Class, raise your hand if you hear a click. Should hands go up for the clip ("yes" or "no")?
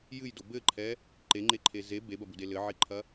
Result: yes